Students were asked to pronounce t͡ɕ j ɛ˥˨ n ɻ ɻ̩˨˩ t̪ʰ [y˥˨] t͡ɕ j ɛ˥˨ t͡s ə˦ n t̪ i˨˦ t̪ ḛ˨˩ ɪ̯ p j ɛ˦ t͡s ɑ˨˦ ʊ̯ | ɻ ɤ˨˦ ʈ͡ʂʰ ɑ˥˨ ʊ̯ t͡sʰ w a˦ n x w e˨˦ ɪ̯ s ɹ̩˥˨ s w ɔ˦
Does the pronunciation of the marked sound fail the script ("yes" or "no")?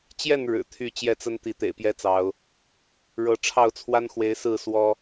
no